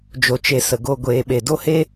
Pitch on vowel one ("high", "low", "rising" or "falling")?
low